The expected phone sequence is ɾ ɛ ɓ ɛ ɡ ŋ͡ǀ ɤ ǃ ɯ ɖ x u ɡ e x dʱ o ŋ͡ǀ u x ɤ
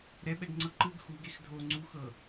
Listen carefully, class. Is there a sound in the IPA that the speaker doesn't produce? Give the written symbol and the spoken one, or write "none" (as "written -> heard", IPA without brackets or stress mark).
ɖ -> ɡ